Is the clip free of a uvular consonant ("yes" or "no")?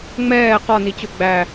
no